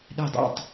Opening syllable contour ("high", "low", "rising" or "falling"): falling